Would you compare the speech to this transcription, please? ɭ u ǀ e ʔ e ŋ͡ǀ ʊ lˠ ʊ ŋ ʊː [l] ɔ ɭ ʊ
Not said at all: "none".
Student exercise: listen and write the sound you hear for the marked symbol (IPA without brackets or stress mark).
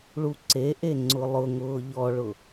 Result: ʎ